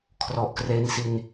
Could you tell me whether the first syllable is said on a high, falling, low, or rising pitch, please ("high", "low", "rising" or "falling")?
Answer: low